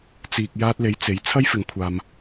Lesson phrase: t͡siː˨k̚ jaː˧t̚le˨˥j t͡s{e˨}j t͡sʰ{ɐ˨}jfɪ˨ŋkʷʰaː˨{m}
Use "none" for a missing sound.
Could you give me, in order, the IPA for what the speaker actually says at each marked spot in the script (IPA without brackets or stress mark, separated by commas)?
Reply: e˨˧, ɐ˥, m